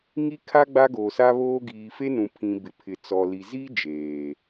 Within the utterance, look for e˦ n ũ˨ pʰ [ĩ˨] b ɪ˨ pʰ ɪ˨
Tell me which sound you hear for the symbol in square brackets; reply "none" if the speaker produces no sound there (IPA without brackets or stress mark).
ĩ˨